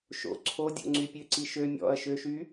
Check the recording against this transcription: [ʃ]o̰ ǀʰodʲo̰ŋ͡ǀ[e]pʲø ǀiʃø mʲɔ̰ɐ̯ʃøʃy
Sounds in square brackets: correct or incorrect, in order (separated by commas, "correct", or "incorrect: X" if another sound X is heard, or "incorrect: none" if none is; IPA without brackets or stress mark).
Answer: correct, incorrect: y